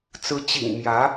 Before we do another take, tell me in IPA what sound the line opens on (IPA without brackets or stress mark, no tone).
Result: t͡s